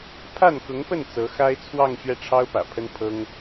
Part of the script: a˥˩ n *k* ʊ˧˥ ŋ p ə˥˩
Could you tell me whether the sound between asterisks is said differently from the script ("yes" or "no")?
no